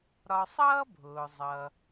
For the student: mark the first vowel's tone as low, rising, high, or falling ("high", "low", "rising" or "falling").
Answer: low